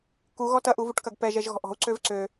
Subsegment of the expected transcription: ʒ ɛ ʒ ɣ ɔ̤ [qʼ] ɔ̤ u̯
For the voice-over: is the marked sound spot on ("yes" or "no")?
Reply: no